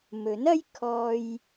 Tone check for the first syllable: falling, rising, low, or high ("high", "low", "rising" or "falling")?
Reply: rising